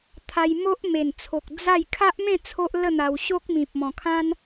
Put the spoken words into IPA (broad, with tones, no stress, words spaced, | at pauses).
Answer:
t̪ʰa˧jmo˦ʔme˨˩n t͡sʰo˨k̚ d͡za˥˧j kʰa˦ʔmẽ˥˧ t͡sʰo˦ʔlə˥˧n̪a˧w ɕo˦k̚mĩ˨p̚mɔ̃˨˩kʰã˦n